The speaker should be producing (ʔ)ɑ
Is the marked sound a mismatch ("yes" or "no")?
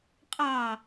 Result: yes